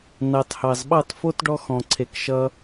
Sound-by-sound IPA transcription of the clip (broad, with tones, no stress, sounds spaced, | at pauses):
n ɑ˧ t h ɑ˨ z ɓ ɑ˦˨ t f o˦ t ɖ ɔ˦ x ɔ̃˨ ǀʰ e˨ k ʃ ʌ˧